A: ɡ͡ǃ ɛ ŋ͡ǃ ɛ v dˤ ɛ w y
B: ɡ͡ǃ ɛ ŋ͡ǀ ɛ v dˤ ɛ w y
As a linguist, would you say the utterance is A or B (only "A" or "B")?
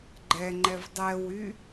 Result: A